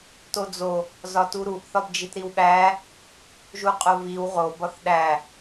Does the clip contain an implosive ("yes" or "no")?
yes